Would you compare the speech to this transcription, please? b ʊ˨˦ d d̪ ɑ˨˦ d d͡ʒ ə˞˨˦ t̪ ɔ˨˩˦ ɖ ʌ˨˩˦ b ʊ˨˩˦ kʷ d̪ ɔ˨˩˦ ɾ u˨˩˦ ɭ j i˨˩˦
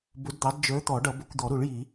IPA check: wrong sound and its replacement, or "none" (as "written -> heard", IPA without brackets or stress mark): none